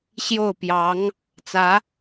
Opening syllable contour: falling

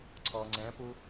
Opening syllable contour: low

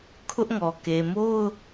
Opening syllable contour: high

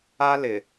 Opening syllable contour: high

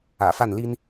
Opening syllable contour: low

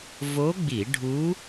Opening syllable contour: rising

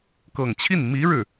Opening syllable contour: low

